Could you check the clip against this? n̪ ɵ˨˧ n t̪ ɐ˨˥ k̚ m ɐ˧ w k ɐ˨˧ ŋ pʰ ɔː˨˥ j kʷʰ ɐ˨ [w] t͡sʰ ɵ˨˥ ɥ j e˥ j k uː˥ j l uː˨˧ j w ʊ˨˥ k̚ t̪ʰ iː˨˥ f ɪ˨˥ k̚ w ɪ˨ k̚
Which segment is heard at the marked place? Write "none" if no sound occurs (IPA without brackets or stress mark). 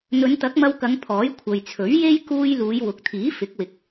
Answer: j